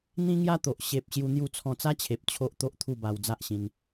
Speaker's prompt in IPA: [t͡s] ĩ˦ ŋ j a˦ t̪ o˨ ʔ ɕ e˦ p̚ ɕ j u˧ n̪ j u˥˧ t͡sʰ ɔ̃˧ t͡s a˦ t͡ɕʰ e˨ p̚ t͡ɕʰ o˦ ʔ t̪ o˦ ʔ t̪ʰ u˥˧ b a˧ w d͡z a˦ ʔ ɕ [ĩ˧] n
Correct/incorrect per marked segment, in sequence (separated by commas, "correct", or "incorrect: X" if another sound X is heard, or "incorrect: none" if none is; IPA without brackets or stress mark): incorrect: n̪, correct